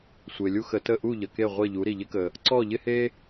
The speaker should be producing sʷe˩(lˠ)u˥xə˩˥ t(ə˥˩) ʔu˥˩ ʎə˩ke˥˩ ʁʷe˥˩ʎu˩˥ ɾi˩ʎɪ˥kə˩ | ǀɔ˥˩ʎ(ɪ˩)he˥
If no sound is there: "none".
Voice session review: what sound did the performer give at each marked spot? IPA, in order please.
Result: lʲ, ə˥˩, ɪ˥

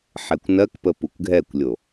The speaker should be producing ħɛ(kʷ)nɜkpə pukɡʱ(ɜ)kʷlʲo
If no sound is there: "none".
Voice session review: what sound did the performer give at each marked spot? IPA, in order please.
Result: kʷ, ɛ

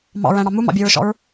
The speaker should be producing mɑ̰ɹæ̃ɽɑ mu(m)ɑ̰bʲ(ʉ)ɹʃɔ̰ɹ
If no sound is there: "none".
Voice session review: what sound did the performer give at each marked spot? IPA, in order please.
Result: m, ʉ

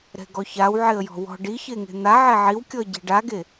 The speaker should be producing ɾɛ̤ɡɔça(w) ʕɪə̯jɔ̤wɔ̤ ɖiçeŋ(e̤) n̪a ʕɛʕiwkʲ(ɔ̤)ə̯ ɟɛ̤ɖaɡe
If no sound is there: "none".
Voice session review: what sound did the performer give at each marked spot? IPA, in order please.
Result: w, e̤, ɔ

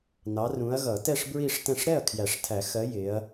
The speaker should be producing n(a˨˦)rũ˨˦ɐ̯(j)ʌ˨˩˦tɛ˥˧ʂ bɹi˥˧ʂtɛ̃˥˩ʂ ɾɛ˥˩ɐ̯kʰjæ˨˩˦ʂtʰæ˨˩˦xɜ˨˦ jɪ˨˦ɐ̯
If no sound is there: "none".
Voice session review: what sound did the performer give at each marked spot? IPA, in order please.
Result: ɑ˨˦, ɣ

